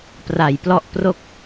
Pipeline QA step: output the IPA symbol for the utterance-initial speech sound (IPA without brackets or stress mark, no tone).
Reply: p